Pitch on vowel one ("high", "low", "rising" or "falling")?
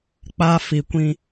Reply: high